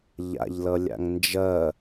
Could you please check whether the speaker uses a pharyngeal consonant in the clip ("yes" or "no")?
no